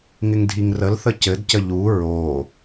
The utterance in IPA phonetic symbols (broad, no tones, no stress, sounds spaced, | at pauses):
ŋ ɪ ŋ dʱ i ŋ r ə l θ ə c ɘ d c ə ʎ u ɹ o